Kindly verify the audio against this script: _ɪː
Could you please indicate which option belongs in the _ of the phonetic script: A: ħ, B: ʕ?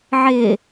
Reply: B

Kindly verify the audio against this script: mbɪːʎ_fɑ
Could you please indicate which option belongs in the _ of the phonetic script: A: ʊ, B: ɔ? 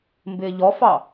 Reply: B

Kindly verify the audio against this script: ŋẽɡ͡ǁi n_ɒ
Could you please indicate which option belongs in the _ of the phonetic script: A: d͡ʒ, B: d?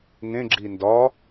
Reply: B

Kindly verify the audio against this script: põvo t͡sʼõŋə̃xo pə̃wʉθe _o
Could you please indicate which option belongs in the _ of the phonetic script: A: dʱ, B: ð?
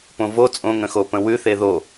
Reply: B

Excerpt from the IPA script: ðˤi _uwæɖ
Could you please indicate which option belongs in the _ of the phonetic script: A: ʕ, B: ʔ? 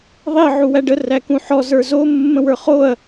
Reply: A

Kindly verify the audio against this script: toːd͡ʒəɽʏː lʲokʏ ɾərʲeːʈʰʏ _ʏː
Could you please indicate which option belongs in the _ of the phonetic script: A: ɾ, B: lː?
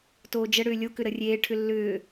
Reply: B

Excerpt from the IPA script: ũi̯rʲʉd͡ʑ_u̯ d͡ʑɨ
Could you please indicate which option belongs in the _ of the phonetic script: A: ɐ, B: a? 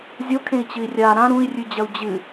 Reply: A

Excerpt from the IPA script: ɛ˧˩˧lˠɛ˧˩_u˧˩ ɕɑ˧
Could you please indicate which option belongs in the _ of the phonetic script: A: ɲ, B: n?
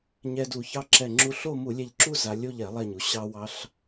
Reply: A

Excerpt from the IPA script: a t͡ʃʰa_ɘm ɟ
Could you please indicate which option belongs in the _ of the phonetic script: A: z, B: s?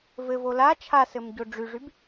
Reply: B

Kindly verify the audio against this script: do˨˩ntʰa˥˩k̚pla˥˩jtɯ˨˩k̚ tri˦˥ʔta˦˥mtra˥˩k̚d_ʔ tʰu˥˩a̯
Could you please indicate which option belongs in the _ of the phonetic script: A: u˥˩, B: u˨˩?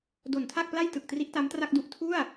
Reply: A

